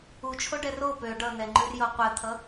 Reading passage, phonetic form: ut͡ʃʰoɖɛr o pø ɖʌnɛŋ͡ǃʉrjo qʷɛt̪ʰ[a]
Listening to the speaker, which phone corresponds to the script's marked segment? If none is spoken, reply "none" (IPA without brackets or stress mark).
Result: ʌ